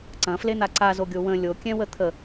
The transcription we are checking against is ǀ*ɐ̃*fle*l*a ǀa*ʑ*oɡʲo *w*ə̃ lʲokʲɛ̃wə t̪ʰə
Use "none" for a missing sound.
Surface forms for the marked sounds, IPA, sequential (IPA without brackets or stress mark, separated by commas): ɐ̃, n̪, z, w